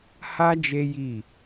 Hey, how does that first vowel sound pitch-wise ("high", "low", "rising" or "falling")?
high